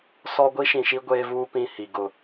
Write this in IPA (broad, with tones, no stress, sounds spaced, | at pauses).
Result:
s ɔ˦ ɡʷ i˦ ʃ ĩ˨ ʃ i˦ ɡʷ eː˦ v uː˦ p ĩ˦ h i˨ ɡ ʊ˨